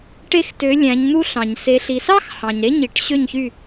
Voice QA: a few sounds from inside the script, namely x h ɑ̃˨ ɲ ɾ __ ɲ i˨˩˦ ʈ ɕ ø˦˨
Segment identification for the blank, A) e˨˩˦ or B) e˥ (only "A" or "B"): B